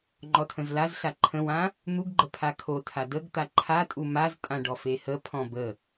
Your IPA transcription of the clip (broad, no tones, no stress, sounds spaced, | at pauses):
ŋ͡ǃ ɔ tʰ ə̃ z l a z ɬ a ǃʰ ə̃ w ã | n̪ u ɡ ɡ͡ǃ ə pʰ a kʰ o tʰ a d ə ɡ t̪ a ǃʰ a tʼ u m a z tʼ ã ɖ ɔ f e h ə pʰ ɔ̃ b ə